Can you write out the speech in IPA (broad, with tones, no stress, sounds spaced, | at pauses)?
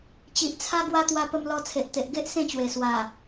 t͡ɕ i˨ ʔ t͡sʰ a˦ ɡ w a˦ t̪ w a˧ p ə˧ m l ɔ˧ t͡sʰ e˨ ʔ t̪ e˨ ʔ ɡ e˦ ʔ s ẽ˥˧ t͡ɕ w e˨˩ s w a˨˩